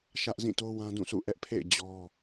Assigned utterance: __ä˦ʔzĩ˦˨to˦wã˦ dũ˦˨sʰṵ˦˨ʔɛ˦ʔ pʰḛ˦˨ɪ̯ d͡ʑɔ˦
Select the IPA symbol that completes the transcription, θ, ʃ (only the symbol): ʃ